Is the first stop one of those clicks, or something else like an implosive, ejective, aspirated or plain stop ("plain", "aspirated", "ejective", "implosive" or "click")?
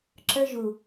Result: click